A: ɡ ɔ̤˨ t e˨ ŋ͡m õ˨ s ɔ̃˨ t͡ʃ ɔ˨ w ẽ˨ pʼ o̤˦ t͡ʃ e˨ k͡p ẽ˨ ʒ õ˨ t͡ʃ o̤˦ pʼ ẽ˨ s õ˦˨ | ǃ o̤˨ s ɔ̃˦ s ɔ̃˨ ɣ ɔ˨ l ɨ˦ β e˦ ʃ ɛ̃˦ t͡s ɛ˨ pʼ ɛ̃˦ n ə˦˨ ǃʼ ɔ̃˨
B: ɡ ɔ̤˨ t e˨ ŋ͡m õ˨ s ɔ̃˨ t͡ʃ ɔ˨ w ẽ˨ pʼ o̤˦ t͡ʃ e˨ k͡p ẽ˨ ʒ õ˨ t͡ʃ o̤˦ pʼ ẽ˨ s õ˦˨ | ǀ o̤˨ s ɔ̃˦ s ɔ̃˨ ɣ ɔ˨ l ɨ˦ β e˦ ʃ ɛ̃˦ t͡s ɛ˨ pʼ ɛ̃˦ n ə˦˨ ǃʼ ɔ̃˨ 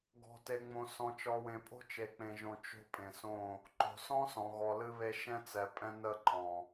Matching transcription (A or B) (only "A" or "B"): A